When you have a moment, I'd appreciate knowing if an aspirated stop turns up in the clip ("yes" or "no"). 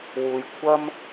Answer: yes